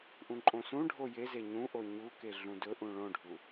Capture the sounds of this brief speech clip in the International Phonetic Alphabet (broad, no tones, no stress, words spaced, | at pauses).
ʔũǃʼõsũɖʱo jeze ɲũʔo ɲuke ɮũdɵʔũ ɭõɖʱu